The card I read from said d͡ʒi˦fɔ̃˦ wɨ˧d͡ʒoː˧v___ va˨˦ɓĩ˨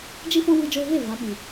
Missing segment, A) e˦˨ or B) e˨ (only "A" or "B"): A